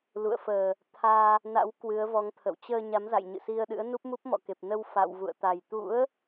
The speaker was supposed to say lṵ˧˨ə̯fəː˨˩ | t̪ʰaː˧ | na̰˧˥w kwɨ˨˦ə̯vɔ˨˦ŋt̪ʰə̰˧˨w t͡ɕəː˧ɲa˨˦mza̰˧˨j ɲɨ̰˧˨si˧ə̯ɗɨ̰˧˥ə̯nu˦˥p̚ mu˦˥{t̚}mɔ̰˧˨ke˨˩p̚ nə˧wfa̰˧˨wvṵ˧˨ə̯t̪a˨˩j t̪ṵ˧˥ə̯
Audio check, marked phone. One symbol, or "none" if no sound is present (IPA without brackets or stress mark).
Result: p̚